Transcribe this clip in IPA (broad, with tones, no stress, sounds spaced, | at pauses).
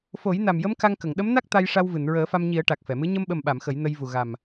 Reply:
f o˨˩˦ j n a˨˩ m j ə˧˥ m k a˧ ŋ k ə˨˩˨ ŋ ɗ ə˧˥ m n a˦˥ k̚ t̪ a˧ j ʂ a˧ w v ɨ˨˩˨ n ɹ əː˨˩˦ f a˧ m ɲ i˨˩˦ ə̯ ʈ a˨˩ k̚ f ɛ˨˩˨ m ɨ˧˥ ɲ ə˧ m ɓ ə˨˩ m ɓ a˨˩˨ m x ə˨˩˦ j n ə˧ j v u˨˩ ɣ a˨˩ m